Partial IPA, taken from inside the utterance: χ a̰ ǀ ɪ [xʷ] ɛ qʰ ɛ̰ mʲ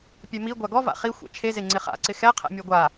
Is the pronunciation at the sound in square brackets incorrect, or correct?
incorrect